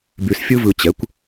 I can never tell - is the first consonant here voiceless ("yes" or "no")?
no